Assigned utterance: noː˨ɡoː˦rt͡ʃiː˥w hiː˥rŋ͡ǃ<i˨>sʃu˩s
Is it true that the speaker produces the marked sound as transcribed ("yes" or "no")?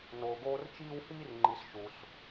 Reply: yes